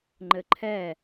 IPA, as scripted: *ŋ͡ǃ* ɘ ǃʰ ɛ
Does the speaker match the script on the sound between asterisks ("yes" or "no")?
yes